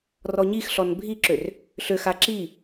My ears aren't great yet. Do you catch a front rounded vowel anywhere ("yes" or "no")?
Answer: yes